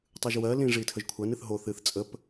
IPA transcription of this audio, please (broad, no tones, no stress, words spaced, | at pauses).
tˤɨʒwɜ lĩ ʐitʰəʒkʷʰɜn ɨθɦo θɨθ t͡sʼəp